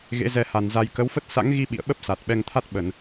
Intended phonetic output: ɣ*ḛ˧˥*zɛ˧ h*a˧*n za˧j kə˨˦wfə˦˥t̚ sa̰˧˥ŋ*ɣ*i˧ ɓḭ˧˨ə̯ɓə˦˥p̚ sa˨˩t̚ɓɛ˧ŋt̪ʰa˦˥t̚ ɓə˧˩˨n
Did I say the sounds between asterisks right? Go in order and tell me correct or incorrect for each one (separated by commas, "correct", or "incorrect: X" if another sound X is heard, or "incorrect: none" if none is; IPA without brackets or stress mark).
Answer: correct, incorrect: a˨˩, correct